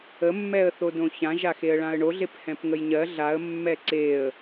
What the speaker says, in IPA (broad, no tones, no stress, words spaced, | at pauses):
əmːɛə̯θodõ çãʒaxeə̯ɭãə̯ ɳoɮephɛ̃pŋəj ɲɜ ɮaə̯mːɛ ǀeə̯